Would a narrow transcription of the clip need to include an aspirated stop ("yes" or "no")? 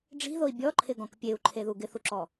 yes